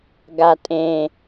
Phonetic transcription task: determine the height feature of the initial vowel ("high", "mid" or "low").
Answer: low